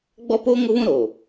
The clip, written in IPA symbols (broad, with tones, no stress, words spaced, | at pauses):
ɡ͡bɔ˦poː˦ ŋʊ˦βũ˦ ɾoː˨